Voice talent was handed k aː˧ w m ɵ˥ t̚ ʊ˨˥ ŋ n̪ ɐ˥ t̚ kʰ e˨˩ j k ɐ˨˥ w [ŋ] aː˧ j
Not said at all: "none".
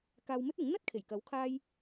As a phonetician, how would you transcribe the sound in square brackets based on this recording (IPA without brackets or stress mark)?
kʰ